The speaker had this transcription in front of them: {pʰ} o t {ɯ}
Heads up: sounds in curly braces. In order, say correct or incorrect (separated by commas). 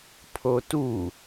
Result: correct, incorrect